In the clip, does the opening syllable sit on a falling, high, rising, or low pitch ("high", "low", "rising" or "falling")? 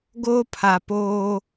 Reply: high